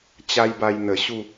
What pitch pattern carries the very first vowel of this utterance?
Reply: high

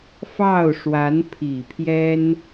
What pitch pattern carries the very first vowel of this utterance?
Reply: falling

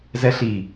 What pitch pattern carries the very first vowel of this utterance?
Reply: high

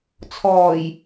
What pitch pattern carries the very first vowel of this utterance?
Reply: low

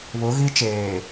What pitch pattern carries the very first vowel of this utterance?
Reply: rising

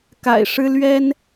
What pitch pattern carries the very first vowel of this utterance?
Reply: low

